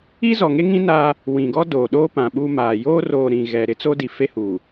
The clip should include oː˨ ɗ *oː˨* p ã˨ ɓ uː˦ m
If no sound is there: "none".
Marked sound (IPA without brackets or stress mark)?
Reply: oː˦